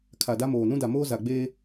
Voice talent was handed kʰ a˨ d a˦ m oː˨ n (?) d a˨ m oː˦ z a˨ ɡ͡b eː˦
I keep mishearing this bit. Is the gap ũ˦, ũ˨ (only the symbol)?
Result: ũ˦